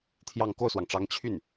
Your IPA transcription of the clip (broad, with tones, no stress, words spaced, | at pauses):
t̪ʰjɑ˥˧ŋ ko˥˩ʊ̯swɑ˩ŋʈ͡ʂɑ˧˥ŋ t͡ɕʰy˥˩n